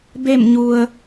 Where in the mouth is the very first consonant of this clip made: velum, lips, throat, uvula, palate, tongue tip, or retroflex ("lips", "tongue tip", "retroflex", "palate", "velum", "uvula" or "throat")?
lips